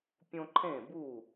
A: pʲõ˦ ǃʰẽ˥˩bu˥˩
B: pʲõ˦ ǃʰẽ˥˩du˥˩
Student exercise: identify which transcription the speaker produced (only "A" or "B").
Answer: A